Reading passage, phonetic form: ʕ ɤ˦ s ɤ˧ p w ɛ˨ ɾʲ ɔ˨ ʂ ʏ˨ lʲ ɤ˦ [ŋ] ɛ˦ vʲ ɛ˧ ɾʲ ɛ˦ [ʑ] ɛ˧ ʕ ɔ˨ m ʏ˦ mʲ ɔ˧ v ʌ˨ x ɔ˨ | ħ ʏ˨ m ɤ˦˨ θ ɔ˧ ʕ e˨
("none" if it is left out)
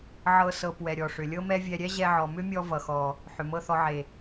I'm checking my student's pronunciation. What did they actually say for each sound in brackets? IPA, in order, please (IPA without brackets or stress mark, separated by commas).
m, ʑ